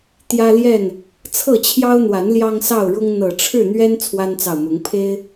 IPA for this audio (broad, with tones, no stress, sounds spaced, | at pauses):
t̪ j ä˦ l j ɛ˥˨ n | t͡sʰ ɤ˥˨ t͡ɕʰ j ɑ˦ ʊ̯ n̪ w a˨˦ n l j ɑ˦ ŋ s ɑ˥˨ ʊ̯ ɻ ʊ˦ ŋ n̪ ɤ˨˩ ʈ͡ʂʰ ɻ̩˥˨ n̪ ɥ ɛ˦ n t͡sʰ w a˦ n t͡s ɑ˨ ʊ̯ m ʊ˨˦ ŋ pʰ e˦ ɪ̯